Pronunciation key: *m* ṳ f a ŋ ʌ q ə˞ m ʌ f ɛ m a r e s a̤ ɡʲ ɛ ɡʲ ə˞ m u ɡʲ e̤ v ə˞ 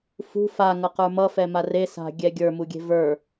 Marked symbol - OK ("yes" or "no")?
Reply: no